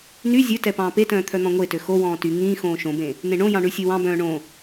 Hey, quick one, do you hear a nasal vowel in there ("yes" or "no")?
yes